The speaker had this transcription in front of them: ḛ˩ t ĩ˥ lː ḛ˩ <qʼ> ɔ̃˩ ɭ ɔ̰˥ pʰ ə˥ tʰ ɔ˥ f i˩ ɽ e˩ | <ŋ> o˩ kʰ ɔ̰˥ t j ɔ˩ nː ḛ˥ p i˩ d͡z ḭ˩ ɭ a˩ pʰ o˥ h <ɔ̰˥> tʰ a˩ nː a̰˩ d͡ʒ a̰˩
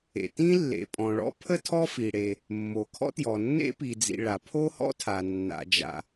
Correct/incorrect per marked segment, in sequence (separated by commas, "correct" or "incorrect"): incorrect, incorrect, correct